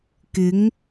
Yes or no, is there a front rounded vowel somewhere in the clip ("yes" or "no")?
no